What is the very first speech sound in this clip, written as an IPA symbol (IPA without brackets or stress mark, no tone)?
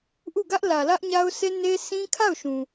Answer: ʔ